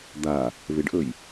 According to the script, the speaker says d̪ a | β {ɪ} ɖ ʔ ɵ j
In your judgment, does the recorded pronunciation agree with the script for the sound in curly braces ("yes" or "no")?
yes